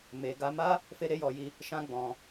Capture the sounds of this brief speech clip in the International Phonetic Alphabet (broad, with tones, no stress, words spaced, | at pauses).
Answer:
me˧ ɡa˧ma˦ | fe˦ɾe˦jɔ˧ji˦ | ʃã˦ɡ͡bɔ̃˧